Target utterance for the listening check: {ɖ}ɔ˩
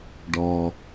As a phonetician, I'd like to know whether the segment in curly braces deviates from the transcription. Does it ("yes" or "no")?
no